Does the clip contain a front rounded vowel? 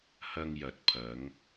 no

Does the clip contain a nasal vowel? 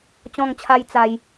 yes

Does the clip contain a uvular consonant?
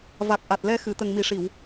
no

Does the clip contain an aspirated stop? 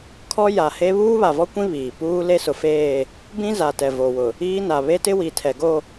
yes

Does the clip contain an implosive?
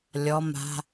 no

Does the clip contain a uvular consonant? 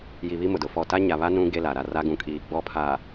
no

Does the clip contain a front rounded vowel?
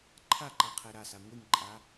no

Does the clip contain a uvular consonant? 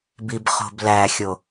yes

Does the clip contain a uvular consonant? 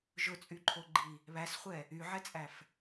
yes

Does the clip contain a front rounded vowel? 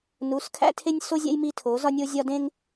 no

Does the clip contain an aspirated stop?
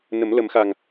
no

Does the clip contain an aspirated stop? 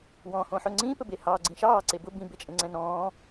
no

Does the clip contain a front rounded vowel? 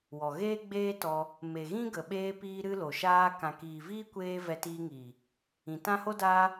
no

